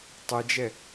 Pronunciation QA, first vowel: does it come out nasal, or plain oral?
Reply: oral